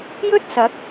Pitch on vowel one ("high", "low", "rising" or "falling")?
high